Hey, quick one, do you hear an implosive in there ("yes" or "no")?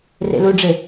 no